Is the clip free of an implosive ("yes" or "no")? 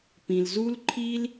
yes